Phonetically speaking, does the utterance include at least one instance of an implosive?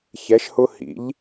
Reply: no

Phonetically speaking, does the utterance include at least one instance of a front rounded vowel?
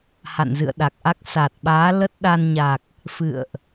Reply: no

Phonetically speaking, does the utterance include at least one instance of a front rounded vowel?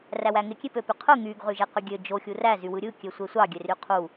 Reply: yes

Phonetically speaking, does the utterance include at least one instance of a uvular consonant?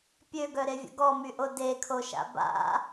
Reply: no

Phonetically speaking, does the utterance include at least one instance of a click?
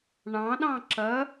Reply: yes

